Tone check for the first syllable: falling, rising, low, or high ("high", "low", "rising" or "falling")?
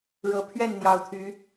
rising